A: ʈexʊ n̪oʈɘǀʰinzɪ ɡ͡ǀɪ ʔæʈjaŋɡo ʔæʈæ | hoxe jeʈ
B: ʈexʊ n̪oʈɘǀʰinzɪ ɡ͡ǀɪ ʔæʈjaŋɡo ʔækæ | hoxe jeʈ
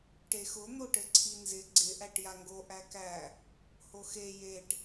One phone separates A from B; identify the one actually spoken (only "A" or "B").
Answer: B